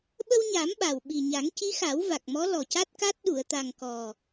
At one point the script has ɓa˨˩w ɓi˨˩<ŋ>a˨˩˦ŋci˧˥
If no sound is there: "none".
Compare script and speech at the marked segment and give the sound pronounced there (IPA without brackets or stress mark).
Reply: ɲ